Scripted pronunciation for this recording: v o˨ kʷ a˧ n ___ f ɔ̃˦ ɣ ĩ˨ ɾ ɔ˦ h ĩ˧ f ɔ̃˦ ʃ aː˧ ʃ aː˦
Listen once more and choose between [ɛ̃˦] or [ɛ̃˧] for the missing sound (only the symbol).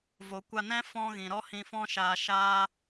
ɛ̃˦